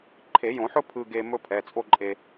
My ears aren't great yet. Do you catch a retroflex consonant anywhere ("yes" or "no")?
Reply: no